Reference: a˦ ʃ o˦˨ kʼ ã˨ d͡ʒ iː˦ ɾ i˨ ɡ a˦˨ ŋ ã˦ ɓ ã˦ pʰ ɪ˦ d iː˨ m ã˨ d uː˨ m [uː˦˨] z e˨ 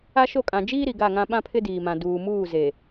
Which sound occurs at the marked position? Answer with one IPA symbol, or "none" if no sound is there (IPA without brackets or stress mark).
uː˦˨